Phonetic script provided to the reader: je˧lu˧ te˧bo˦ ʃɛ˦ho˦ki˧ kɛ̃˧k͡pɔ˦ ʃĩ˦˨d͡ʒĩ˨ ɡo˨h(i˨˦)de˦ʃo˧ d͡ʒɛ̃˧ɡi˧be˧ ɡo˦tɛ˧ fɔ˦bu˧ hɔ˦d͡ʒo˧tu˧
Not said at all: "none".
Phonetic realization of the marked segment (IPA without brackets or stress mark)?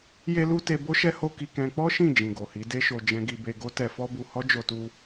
i˨˦